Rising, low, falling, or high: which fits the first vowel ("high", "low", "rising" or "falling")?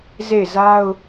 falling